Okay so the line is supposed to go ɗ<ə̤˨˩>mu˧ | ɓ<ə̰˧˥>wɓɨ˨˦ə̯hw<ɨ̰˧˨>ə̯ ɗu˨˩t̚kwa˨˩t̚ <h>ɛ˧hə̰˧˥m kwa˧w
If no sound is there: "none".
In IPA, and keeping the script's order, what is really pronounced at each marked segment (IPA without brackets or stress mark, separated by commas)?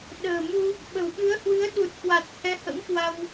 ə̤ː˨˩, ə̤˨˩, ɨ˨˦, h